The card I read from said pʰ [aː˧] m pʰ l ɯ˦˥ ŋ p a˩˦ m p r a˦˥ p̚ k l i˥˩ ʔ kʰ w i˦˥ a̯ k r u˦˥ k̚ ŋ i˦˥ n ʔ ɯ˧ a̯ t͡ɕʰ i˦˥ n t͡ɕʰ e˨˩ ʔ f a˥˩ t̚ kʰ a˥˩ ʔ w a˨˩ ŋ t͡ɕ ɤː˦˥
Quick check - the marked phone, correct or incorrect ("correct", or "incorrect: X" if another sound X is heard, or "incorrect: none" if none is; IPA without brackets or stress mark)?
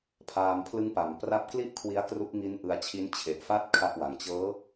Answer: correct